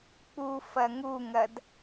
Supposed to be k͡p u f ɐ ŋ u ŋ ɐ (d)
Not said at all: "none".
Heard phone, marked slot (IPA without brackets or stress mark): d